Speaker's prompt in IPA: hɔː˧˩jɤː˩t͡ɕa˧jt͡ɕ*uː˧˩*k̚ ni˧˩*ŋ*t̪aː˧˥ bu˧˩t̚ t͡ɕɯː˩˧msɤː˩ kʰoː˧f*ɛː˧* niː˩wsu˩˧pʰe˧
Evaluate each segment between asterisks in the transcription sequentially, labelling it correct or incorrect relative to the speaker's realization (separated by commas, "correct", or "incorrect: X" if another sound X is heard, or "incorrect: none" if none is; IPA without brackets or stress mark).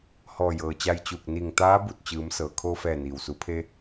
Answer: correct, correct, incorrect: ɛː˧˩